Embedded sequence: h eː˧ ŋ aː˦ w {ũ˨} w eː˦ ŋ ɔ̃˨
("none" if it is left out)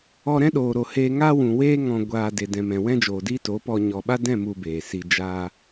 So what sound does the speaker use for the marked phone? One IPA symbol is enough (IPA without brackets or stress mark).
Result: ũ˨